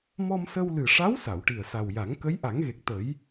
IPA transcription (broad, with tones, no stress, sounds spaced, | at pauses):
m ɔ˧ m s ə˧ w l ɨ˨˩ ʂ a˧˥ w s a˨˩˨ w ʈ i˨˩ ə̯ s a˨˩ w j a˨˩˦ ŋ k ə˧˥ j ʔ a˨˩˦ ŋ ɣ e˨˩ k̚ t̪ ə˨˩˦ j